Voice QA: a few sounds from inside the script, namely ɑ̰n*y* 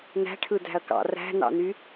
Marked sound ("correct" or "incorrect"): correct